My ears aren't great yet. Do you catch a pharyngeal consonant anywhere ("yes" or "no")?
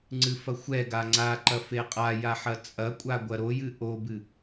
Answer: yes